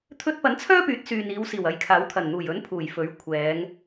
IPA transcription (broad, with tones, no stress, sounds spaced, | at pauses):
t̪ʰ ɵ˧ t̚ p ɐ˨˥ n t͡sʰ œː˥ p yː˨˥ t̚ s yː˨ n iː˨˧ w s iː˨˩ w ɐ˨ j kʰ aː˨˥ w t̪ʰ ɐ˨˩ n n̪ uː˨˩ j ɵ˨˥ n pʰ uː˨˩ j f ɵ˨˥ ɥ kʷʰ ɛː˨˧ ŋ